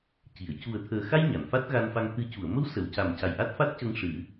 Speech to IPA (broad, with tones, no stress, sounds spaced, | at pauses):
c i˨˩˨ ə̯ c u˨˩ ə̯ t̪ʰ əː˨˩ x a˧ j ɲ a˨˩˨ n f a˦˥ t̚ ɣ a˧ n f a˧ ŋ t̪ ɨ˨˩˦ c u˨˩˨ ə̯ m ə˧˥ w s ə˨˩˨ w c a˨˩ m c a˨˩ j ʔ a˦˥ t̚ f a˦˥ t̚ c ə˧ ŋ ʂ ɨ˨˩˦